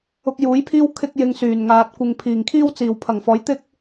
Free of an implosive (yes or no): yes